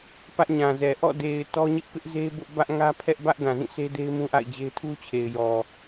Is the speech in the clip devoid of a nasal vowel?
no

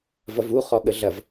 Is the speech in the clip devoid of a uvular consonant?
no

